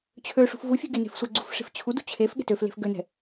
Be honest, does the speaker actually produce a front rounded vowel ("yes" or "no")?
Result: yes